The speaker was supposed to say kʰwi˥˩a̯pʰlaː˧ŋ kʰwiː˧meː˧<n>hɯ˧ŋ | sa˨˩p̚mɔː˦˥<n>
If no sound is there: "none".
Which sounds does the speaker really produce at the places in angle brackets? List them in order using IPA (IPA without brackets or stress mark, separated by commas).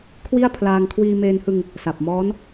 n, n